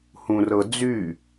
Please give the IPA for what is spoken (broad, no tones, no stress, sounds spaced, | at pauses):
h ũ r ɤ d͡z y